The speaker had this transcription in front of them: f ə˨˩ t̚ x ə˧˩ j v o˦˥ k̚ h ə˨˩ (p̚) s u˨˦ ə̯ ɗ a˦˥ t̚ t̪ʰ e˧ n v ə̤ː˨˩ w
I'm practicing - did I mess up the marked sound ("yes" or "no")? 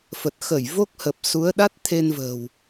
no